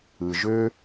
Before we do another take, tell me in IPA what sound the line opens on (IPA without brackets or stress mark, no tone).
ɯ